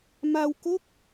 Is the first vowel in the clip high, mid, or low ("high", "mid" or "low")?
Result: low